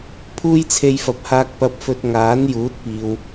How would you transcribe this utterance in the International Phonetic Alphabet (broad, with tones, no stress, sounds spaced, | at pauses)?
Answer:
pʰ uː˥ j t͡sʰ e˧ j f ɐ˨ p̚ h aː˧ k̚ p ɐ˧ p̚ f ɵ˧ t̚ ŋ aː˨˥ n j uː˨˥ t̚ p iː˨ w